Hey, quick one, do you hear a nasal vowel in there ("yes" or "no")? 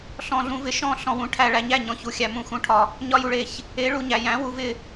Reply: yes